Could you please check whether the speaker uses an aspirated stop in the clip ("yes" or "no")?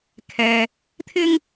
yes